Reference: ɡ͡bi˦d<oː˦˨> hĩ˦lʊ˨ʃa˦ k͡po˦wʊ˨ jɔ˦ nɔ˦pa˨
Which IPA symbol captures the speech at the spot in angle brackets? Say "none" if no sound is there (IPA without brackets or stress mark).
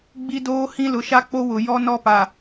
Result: oː˦